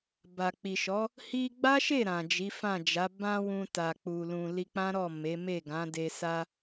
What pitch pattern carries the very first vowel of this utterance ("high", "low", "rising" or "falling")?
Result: low